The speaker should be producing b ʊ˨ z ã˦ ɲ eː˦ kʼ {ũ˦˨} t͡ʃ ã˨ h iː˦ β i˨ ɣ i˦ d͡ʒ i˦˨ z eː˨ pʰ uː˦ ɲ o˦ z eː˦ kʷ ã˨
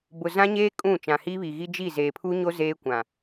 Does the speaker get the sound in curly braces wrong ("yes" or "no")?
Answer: no